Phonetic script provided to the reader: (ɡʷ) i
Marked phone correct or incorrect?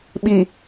incorrect